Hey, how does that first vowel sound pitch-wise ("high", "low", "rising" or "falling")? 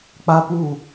high